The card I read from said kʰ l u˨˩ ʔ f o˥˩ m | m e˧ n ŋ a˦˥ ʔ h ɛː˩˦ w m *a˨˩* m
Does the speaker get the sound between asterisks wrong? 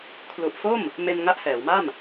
yes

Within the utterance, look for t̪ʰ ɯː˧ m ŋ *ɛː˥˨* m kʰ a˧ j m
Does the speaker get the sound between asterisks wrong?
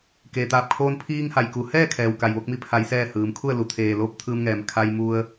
yes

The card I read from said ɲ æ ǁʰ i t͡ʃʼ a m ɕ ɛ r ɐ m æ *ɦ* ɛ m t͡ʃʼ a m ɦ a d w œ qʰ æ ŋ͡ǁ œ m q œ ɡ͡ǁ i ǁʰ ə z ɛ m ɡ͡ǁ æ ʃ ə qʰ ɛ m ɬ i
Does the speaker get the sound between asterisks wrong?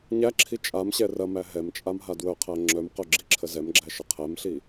no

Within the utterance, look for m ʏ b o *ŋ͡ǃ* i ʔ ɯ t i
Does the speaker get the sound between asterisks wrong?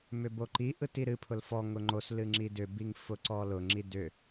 yes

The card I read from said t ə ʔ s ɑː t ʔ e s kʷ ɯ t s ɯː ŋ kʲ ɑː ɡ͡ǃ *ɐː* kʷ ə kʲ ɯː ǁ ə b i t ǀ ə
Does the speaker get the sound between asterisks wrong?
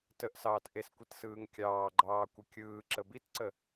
yes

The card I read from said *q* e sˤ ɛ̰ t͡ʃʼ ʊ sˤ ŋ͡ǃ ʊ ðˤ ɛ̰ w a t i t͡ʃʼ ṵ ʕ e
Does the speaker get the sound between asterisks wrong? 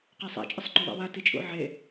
no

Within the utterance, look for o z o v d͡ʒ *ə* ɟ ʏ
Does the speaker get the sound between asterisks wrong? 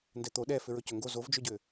yes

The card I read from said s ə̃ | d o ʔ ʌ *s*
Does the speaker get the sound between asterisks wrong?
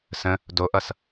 no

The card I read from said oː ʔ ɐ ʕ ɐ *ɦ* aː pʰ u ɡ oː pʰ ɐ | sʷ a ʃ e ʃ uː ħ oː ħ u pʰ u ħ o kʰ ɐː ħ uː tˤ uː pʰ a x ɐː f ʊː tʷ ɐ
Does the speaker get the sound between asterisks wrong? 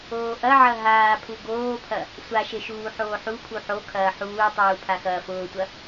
no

